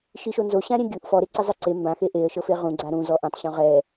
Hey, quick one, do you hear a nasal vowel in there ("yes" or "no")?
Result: yes